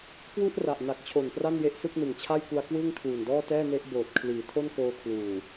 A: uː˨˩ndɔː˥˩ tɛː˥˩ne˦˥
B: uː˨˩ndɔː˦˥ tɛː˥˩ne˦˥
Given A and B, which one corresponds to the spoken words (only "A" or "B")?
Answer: A